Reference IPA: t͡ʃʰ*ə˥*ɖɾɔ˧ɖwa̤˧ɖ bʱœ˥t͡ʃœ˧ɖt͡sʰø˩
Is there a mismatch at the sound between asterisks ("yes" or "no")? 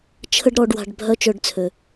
no